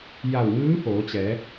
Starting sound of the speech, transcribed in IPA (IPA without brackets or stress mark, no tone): j